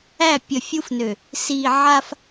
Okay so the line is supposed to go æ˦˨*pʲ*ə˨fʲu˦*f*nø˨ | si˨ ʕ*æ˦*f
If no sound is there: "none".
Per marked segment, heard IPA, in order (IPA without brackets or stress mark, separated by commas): pʲ, f, a˦